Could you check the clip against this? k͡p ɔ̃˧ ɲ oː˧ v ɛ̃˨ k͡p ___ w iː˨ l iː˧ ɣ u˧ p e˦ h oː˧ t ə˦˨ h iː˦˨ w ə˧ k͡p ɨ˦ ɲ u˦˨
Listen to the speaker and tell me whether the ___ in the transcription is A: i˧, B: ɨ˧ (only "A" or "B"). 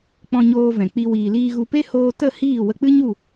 A